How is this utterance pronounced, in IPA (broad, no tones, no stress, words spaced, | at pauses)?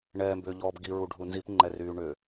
ɳɛːmbʏːʎɔːb ɡiɹuɖʱu nzipŋ͡ǃɛryː ɳʏ